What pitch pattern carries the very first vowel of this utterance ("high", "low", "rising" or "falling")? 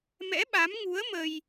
rising